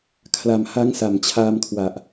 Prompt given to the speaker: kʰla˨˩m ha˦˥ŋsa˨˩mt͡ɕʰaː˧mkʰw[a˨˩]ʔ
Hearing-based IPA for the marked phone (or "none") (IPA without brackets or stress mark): a˨˩